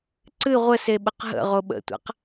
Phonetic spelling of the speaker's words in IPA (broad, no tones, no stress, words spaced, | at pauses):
ǀɨ ʁʷəseɓəq ɦə̰ ʁoɓə̰tʷa̰q